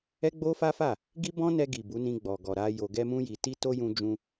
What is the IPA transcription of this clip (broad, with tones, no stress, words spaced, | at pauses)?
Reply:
ɛ˦ɡ͡bo˦fa˦fa˦˨ | ɡi˦bɔ̃˦nɛ˧ɡi˨ bu˨˦nĩ˧ɡ͡bɔ˨ ɡɔ˨ɾa˧ jo˨ɡɛ˧mũ˧ji˨ ti˧to˧ jũ˧d͡ʒũ˧